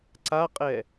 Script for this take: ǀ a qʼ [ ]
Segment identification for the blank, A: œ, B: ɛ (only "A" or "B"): B